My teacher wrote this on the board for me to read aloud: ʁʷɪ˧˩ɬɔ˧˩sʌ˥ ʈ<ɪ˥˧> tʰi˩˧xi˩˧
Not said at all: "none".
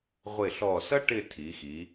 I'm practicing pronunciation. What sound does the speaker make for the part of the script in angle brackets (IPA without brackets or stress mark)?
ɪ˥˧